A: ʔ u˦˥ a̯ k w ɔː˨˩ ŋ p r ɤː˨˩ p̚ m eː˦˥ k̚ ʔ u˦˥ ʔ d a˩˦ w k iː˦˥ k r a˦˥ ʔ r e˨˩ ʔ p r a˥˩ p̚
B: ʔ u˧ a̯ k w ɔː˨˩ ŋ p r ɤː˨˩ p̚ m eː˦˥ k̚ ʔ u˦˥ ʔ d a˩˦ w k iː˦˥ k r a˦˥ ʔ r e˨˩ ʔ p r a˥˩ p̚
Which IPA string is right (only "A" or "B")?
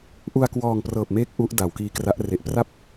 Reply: B